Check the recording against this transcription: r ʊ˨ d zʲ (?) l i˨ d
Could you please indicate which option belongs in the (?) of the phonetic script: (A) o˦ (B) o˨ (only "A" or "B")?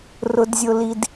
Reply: B